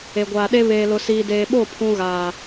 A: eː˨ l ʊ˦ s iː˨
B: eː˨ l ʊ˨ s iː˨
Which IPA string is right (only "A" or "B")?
B